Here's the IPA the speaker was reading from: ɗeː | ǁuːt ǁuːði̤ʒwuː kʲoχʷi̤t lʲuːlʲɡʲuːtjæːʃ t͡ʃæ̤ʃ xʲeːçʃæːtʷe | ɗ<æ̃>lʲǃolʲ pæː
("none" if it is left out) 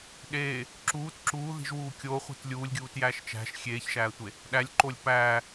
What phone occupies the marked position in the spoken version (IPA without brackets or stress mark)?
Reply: æ